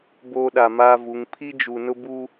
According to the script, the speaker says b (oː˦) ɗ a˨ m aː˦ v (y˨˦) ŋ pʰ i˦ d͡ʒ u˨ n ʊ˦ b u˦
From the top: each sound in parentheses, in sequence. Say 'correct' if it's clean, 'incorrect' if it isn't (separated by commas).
correct, incorrect